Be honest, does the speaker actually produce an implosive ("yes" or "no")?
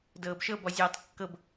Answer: no